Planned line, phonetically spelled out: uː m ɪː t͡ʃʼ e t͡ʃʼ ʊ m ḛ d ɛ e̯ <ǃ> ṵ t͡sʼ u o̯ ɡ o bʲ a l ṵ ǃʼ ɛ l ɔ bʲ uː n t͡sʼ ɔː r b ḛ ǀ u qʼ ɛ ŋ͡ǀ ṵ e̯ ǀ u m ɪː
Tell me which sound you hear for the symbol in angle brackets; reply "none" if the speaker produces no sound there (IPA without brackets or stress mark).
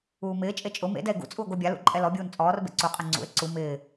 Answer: ɡ